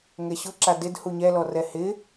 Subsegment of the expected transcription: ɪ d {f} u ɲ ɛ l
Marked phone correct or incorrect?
incorrect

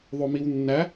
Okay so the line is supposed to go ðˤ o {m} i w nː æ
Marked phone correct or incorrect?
correct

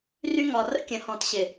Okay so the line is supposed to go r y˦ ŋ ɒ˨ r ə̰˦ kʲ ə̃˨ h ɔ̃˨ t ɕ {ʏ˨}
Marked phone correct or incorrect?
incorrect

